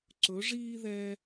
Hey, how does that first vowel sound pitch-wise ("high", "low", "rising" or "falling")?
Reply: rising